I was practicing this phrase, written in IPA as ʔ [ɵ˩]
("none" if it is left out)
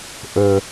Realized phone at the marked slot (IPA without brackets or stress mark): ɵ˩